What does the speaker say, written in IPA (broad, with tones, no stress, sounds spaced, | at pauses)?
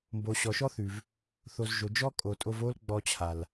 m b o˨ ɕ ɔ˨ ʃ ɔ˦ θ ʉ˨ v | θ o˨ z ʒ o˨ d͡ʒ ɔ˦ kʼ o˨ tʼ o˧ v o˦ l ɡ͡b ɔ˧ t͡ɕʰ a˨ l